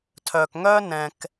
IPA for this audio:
tʰ œː˨ k ŋ œː˦ n ɛ̃˨ k

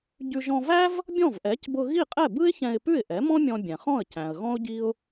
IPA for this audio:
ɟ ʉ˧ ʒ ɔ̃˧ v æ˥ v | bʲ ɔ̃˥˩ v ʔ ɛ˩˥ c b ʊ˧ ɣ i˥˩ qʼ ɛ˥˩ b ɯ˥ ɪ̯ ç ɛ̃˧ ɪ̯ p ʉ˥˩ ɪ̯ ʔ ɛ˩˥ m ɔ̃˥ mʲ ɔ̃˧ bʲ ɛ̃˩ χ ɔ̃˥˩ ə̯ c æ̃˩ ə̯ ɣ ɔ̃˥ ʊ̯ ɟ i˥ ʊ̯

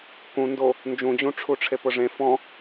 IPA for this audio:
k ũ n d o | n d͡ʒ ũ d͡ʑ ũ ʈ͡ʂʰ u ʈ͡ʂʰ e p ʊ ʐ ẽ f ɔ̃

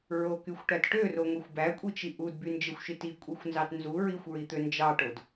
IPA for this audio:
ɹ o k y xʷ ʈ æ t ʈ ø r o ŋʷ i xʷ b æ kʷʼ i t͡ʃ i ʔ u d b y n d͡ʒ e xʷ ʃ i t i kʷʼ i xʷ n z ɑ t n z u ɹ i xʷ ɹ i t̪ ø n d͡ʒ ɑ ʈ o d

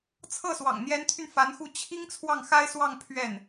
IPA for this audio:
t͡sʰ ɤ˥˩ s w ɑ̰˨˩ ŋ n̪ j ɛ˧˥ n t̪ʰ y˧ n f a˧˥ n x u˥˩ t͡ɕʰ i˥ ŋ t͡sʰ w ɑ˥˩ ŋ x a˥ ɪ̯ s w ɑ˥˧ ŋ pʰ ɥ ɛ˥˩ n

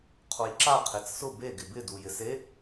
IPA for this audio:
qʰ o j ǁ a qʰ e t͡s s ʊ b e ɡ ɪ b ɪ d u j ɪ s e

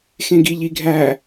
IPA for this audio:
x ẽ ɡ i ʎ i ɡʱ æ

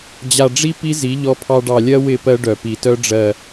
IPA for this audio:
d͡ʑ a˨ ɖ͡ʐ i˦ p i˦ z i˨˦ ʎ ɔ˦ pʰ ɑ˦ ɖ ɑ˨ lʲ ɜ˦ w ɪ˦˨ p ɜ˦ ɖ œ˨ p i˨ t œ˦ ɖ͡ʐ ɜ˨

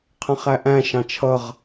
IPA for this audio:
qʰ ə̃ χ æ ʔ æ̃ ʃ ɑ̃ t͡ʃʰ ʌ ʁ

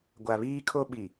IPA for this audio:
ɡʷ a˨ β iː˦ kʰ o˦ ɓ i˨

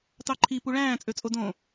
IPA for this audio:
t ɑ ǃʰ i p u ɭ æ̃ː t͡sʼ ø t͡sʼ o d õ

